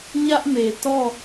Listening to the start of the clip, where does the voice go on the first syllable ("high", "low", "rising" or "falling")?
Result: high